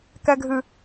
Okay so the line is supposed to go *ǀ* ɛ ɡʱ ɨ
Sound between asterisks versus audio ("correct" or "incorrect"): incorrect